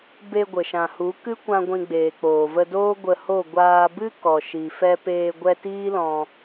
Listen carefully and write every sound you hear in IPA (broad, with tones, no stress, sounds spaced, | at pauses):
b e˧ ɡʷ ə˨ ʃ ã˨ h u˨˦ k ɨ˦ kʷ ã˧ ɡʷ ĩ˧ ɡ͡b eː˨ k͡p oː˨ v ə˧ d oː˦ ɡʷ ə˧ h o˦˨ ɡʷ aː˧ b ɨ˦ k ɔ˨ ʃ i˨ f ɛ˧ p eː˧ ɡʷ ɛ˧ t iː˦ l ɔ̃˧